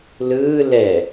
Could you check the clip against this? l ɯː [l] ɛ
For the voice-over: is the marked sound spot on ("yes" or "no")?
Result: yes